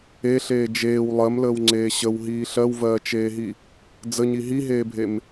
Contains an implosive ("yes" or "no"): no